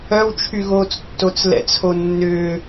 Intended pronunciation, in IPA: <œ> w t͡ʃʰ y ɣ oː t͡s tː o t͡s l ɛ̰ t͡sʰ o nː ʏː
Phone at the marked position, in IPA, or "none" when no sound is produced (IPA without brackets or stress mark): œ